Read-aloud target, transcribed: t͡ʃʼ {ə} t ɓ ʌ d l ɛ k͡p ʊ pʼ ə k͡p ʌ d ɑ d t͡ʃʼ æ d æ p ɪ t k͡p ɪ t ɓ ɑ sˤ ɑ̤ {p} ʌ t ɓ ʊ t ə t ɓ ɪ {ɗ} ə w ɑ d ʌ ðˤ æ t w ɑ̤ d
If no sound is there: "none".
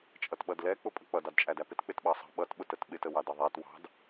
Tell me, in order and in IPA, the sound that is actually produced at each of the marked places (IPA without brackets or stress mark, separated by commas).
ʌ, ɓ, t